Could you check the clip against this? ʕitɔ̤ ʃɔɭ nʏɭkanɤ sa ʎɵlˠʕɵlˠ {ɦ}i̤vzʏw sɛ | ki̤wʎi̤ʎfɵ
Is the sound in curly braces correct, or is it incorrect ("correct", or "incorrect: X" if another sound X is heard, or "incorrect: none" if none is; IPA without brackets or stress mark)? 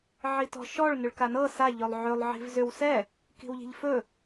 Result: incorrect: ʕ